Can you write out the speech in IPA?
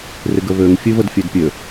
rɪɡəβøŋ fʲʉvədfʲødpʲø

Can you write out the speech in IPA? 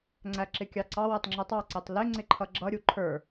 ŋ͡ǀæǁɪkʲɑǀɑ wɛtˤŋ͡ǁutˤɑ ǀɛtˤlɪ ŋ͡ǀɪǃʰʌɡ͡ǁʌ ɾʲuǃʰə˞

